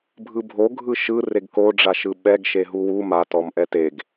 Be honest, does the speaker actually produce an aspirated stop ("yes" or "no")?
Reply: no